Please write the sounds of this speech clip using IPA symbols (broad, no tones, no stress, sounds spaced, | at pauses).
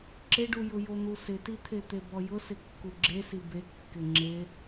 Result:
ǁ ɪ ɖ u j ʊ j o n̪ u s ɪ t i t̪ʰ e t̪ e b ɔ j ʊ s ɪ kː u ɡ͡ǁ e s i b e kː ɪ ŋ͡ǁ e